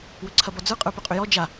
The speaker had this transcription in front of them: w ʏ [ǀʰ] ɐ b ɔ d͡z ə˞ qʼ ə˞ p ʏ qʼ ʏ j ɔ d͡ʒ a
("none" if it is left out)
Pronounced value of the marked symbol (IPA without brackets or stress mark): ǀʰ